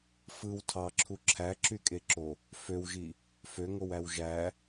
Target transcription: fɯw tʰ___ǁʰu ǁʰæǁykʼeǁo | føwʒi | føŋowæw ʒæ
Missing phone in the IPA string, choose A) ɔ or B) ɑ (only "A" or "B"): B